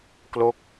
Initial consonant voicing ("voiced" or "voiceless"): voiceless